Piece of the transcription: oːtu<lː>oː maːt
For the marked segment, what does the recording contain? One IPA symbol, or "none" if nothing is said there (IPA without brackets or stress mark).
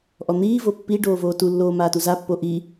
lː